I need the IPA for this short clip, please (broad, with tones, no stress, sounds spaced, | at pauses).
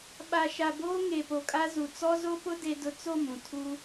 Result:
ɓ a˨ ʃ a˨ b oː˦ ŋ e˨ p o˨ kʼ a˦ z u˨ t͡s ɔ˦ z o˦ p ʊ˦ d e˦ d ʊ˦ t͡s o˦˨ m ũ˨ tʰ u˦